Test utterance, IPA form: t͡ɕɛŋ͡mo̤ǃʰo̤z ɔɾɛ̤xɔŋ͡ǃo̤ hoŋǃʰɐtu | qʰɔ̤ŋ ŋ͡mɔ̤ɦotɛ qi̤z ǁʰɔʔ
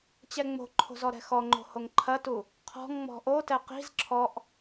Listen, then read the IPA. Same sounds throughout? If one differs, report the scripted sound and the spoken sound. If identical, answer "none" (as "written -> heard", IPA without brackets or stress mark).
ɦ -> ʔ